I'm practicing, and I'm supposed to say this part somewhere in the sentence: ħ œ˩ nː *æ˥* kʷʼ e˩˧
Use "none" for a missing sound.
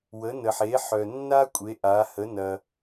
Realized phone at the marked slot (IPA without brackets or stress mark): a˥